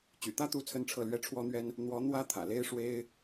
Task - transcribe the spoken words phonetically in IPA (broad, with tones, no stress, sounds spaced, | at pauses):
t͡ɕ y̰˨˩ t̪ ä˥ t̪ u˧˥ t͡sʰ ə˥ n ʈ͡ʂʰ ɤ˥˩ l ɥ ɛ˥ ʈ͡ʂʰ w ɔ˥ n̪ ɥ ɛ˥ n | n̪ w ɔ˧˥ n̪ w ä˥ t̪ʰ ä̰˨˩ l e˥ ɪ̯ ʂ w e˥ ɪ̯